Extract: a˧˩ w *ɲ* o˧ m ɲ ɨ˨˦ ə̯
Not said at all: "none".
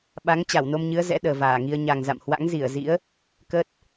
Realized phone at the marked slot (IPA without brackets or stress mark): n